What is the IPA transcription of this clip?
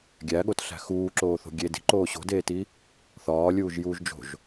ɡʲ æ ɠ o t ɬ æ̤ x uː ǁ oː θ o̤ ɡʲ e d i̤ ǃ oː ɕ o̤ d eː t i | θ ɒː lʲ uː ʒ j uː ʒ d͡ʒ o̤ ʒ

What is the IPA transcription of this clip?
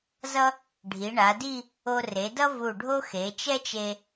z ʌ˥ | ɖʱ i˩˧ ɳ a˩˧ d i˥˧ | o˧ r e˩˧ d ʌ˥ v u˧˩ ɖʱ o˥ x e˩˧ t͡ʃ ɛ˥ t͡ʃ e˧

